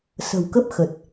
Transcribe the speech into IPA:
sə̤˨˩wkə˦˥p̚xə˨˩t̚

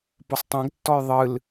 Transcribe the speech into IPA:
posˤtˤɛ̃ɡtːɔj ðˤɨl

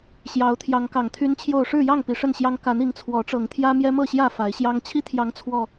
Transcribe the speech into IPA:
ɕjɑ˨˦ʊ̯t̪ʰjɑ˨˦ŋkɑ˨˩ŋ t̪ʰy˦nt͡ɕʰjo˥˨ʊ̯ ʂɻ̩˥˨jɑ˥˨ŋ pi˨˦ʂə˥˨nɕjɑ˦ŋ ka˨˦n i˨˦ŋt͡sʰwɔ˨˦ʈ͡ʂɤ˨˩ŋt̪ʰjä˦ mjɛ˦mɤ˥˨ɕjä˥˨ fa˨˦ɪ̯ɕjɑ˦ŋ t͡ɕʰi˦t̪ʰjɑ˨˦ŋ t͡sʰwɔ˨˩

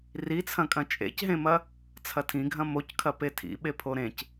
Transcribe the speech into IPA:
rit͡sʰɐ̃kʼɐ̃ t͡ʃʼḛcɦẽmɐ | t͡sʰɐtʰĩɡʱɐ̃ mockʰɐ petʰḭ ɓepʰoɾẽc

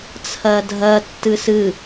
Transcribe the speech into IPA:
t͡sʰɜdʱɜtːɨ sɨ

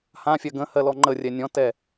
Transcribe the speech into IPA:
hãfʲɜ ɡə̃hɜlɔ ŋ͡ǃərʲɛ nʲɔ̃tɛ

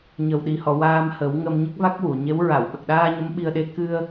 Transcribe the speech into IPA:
ɲə˨˩wɗi˨˩hɔ˨˩˨ waː˧mhə˨˩˦wŋə˧m ɲə˦˥k̚va˦˥k̚wu˨˩˨ɲe˧˥w ɹa˨˩˨wɓə˨˩k̚ɗaː˧ ɲə˧˥mɓi˧ə̯ɗe˧ kɨ˧ə̯

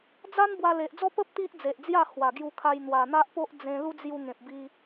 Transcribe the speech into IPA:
d͡za˦n bwa˧le˨ʔd͡zɔ˦ pə˦p̚ t̪i˦ʔd͡ze˨ʔd͡zja˥˧ hwa˨˩ɡju˧kʰa˧j n̪wa˨˩n̪a˦ʔpo˦ʔ d͡zẽ˧lu˦ d͡zju˧ ŋẽ˨p̚bi˧

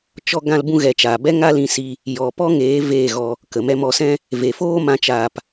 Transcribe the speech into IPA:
t͡ʃɔ˦ ɡã˦lbũ˦ɣɛ˨˦t͡ʃaː˨ bɛ˦ŋa˦lĩ˧si˧ | jɔ˨pɔ˦ŋeː˨˦ veː˦˨ɣɔ˧ | kə˨mɛ˦ mɔ˧sɛ̃˦ | ve˨foː˦ mã˦t͡ʃaː˧p

